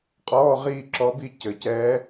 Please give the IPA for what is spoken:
qʼɔː˧˥˧ʁiː˥˨ǁɔ˧˥bi˥˨ cɘ˧˩˧cɛː˧˥

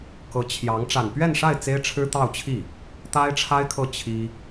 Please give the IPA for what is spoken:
kɤ˧˥t͡ɕʰjɑ˧˥ŋ ʈ͡ʂa˨˩npɥɛ˥˧nʂa˥˩ɪ̯ t͡se˥ɪ̯ʈ͡ʂʰɻ̩˥t̪ɑ˥˧ʊ̯t͡ɕʰi˥˩ | t̪a˥ɪ̯ʈ͡ʂʰa˥ɪ̯kʰɤ˥˩ t͡ɕʰi˥

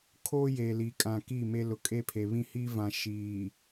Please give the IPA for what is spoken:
kʰoː˦je˨li˨kʼã˨ kiː˦˨me˦ lʊ˨kʼe˦pʰe˨ βĩ˦hi˦vã˨ ʃiː˨

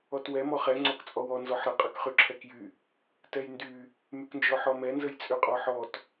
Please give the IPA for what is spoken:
ɔtwɛ mɔχɛ ŋ͡ǀɔkt͡sʼɔwɔ nzɔħɾə qʼəkχyǁʰɛkjy | tɛjndy | myknd͡ʒɔħɔmɛ nzəjt͡sʼyqʼɔħɔt

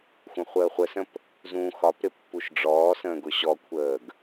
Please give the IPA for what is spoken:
xʷə̃χʷəːχʷəsə̃p | zũːxɒpɾɪ pːuʃɖ͡ʐɔːsə̃ːɡ ʊɕɔkʷʰəːɡ

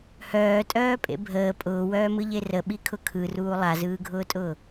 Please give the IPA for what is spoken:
hœːtʼœːpʼḛ bʱəː pʼʊːwœːmɯʎe rəɓikʰʊ kʰɯruː lˠazɯːɡʱʊːtʼʊː

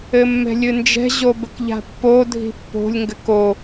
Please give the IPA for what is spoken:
ɘmːɛ̤lʲɨnd͡ʒɛ̤ ʑobɘkʎa̤pːo dʱi̤pːo̤lʲ ŋɡɘko

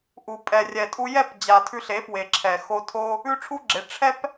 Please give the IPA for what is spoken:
ʔu˨pʼɛ˨rʲɛ˨tʼu˧ jɛ˦˨pd͡ʑa˨ tʰʉ˧ɬe˨˦pwe˨ǁʰɛ˨ xo˧tʰo˦ | ʉ˦ʈ͡ʂʰu˦ɡ͡ǁe˨˦ ʈ͡ʂʰɛ˦p

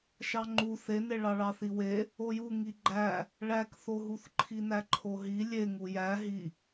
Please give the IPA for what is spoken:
ʃɑŋ͡ǃu θene ɭɑɭɑθiwe | oju ŋiɡ͡ǃæ | ɭækθoɦuθ ǃʰinæǃʰoɦi lʲeŋu jæ ɦi

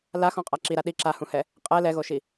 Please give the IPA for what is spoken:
laxɔ̃qʼa ǁiɾa ɗi ǁahũhɛ | qʼɛ lɛɣoʃi

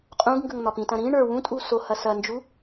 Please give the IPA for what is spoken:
qʼũɡŋɡəŋ n̪ɒpĩtɐ̃ ɾĩ ɳə˞ wũtʼu sohɐ sɐnd͡ʒu

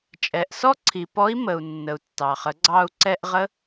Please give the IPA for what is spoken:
t͡ʃʼɛ˩ʔsɔ˥ǀʰi˩pɔ˧˥i̯ mə˩u̯nːə˩u̯ tːɑ˩χə˩˧ɡ͡ǀɑ˧u̯ ǀɛ˧ʔʁə˧˥

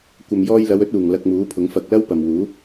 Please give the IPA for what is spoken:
kʷɐ˨mjɔː˧jlɐ˨˧wɵ˨˥t̚ uː˨˩ŋ lɐ˧k̚muː˨˥pʰʊ˨˥ŋfɐ˧k̚ lɐ˥wpɐ˨mwuː˨˥

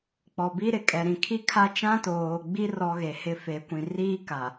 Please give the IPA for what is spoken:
k͡pɔ˨bi˦ ɾɪ˨ kʼɛ˨ɾĩ˨kʰi˦kʰa˦ t͡ʃã˦toː˨ɡ͡bi˦ rɔ˦ ɣe˨hɪ˦fe˨˦kʷĩ˨ riː˦ka˨

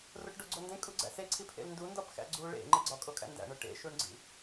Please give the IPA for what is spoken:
roʈɖoɡ͡ǀondẽ kʼuɡ͡ǀæ̰se ǀʰipʰḛlndu ndɒpxæ̰ɡ͡ǀu ɭḛ ŋ͡ǃeɡ͡ǀɒ kʼokʼæ̰ndæ̰ɳo ʈḛʃuɳɡ͡ǀḭ

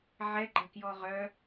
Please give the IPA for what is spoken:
ʕɛɡ͡ǃɐkjɔ ʁœ

